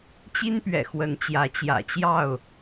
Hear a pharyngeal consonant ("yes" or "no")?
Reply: no